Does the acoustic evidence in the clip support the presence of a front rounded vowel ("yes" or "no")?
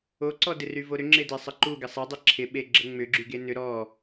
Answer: yes